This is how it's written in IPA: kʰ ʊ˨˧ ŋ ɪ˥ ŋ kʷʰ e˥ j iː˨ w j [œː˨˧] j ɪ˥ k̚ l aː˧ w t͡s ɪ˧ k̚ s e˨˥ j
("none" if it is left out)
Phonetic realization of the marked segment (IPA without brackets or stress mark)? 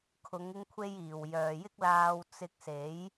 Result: œː˨